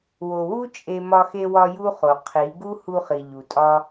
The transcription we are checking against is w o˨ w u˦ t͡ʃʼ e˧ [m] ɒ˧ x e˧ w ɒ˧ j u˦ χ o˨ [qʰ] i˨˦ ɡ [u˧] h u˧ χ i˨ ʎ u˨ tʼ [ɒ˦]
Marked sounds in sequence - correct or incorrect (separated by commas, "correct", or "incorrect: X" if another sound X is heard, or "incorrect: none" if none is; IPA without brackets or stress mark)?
correct, correct, incorrect: u˦, correct